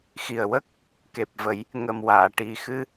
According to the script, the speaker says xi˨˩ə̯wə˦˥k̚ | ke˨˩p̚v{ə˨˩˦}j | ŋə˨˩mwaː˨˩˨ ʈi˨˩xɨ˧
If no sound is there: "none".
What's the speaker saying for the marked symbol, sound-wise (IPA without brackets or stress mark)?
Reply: ə˨˩˦